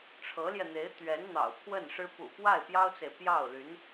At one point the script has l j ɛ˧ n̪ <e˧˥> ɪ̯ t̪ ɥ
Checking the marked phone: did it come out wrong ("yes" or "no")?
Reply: no